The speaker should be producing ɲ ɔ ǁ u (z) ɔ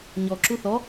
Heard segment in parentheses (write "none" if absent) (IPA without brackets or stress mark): θ